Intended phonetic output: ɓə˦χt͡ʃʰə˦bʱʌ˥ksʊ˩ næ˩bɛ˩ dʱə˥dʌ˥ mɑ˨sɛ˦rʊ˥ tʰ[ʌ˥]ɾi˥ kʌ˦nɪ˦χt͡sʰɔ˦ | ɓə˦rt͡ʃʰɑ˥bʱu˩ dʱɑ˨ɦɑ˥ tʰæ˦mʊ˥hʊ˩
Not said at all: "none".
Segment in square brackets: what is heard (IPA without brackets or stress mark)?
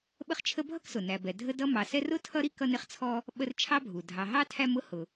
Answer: ʌ˥